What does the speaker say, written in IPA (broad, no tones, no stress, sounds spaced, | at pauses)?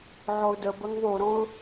ʕ ɔ ʊ̯ d ə b ə ŋ ðˤ u ɾ ɔ̃ ʊ̯